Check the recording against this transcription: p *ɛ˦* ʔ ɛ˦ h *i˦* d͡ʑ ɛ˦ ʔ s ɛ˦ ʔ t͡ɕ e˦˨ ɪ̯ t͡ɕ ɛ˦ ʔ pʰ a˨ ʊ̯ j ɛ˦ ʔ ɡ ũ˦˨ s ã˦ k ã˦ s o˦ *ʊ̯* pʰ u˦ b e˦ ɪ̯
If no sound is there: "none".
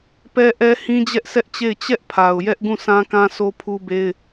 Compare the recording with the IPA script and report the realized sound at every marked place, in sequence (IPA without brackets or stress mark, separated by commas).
ɛ˦, ĩ˦, none